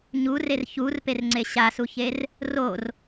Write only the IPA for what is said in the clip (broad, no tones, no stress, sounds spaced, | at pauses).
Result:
ɲ u r e r ç u r p e r ŋ͡ǀ e ɕ a s u ç e r | r o r